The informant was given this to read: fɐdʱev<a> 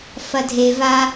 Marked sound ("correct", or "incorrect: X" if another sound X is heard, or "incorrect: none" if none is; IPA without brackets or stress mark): correct